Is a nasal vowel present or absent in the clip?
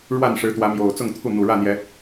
absent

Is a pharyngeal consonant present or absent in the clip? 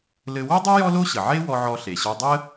present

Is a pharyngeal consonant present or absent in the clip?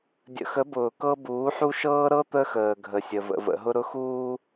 present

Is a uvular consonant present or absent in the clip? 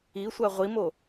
present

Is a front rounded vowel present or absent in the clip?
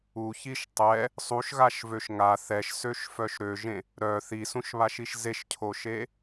present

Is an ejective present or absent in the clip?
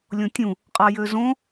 present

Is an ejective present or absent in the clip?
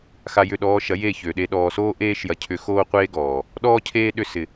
absent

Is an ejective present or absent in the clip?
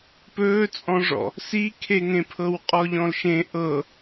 present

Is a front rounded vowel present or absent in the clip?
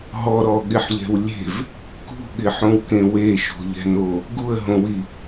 absent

